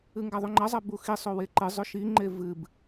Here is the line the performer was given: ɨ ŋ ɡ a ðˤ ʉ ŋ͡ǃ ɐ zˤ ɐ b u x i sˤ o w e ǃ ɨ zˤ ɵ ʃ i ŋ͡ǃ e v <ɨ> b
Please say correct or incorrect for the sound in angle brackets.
correct